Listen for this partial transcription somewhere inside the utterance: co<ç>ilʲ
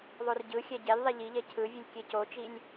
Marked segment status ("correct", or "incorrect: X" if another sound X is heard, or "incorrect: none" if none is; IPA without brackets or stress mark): incorrect: t͡ʃ